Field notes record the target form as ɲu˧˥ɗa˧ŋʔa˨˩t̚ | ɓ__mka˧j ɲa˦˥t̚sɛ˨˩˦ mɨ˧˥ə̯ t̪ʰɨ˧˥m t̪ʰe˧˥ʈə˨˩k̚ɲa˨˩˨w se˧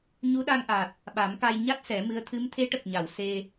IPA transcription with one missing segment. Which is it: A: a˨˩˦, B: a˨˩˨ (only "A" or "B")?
A